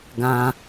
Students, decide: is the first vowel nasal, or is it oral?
nasal